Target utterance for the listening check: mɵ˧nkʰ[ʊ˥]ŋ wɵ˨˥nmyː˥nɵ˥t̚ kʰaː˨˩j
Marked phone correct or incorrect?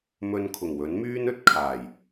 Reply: incorrect